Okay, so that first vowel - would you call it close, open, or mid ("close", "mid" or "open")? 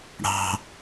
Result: open